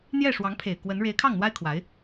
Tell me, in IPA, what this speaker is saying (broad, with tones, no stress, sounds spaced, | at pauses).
n̪ j ɛ˥˩ ʂ w ɑ˧˥ ŋ pʰ e˨˩ ɪ̯ k w ə˧˥ n ɻ e˧˥ ɪ̯ kʰ ɑ˥˩ ŋ n̪ w a˥ ɪ̯ kʰ w a˧˥ ɪ̯